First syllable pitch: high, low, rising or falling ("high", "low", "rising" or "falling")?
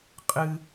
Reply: high